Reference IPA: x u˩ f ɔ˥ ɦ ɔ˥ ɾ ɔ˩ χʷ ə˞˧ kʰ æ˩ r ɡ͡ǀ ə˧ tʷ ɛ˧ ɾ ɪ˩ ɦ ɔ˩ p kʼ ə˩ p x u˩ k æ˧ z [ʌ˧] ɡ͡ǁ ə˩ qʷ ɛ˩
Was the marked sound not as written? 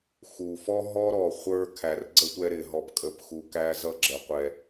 no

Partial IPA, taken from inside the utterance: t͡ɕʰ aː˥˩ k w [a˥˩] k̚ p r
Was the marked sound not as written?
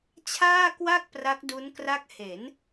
no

